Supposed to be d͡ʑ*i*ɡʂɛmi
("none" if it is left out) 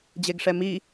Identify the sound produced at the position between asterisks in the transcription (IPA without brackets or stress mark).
e